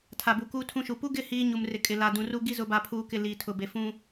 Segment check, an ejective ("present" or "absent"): present